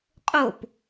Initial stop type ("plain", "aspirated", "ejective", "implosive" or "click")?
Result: ejective